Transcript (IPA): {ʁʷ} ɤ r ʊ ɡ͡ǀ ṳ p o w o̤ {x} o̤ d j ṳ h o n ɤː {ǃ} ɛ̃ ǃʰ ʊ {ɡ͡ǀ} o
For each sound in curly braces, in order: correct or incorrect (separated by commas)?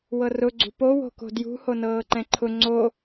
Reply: incorrect, incorrect, correct, incorrect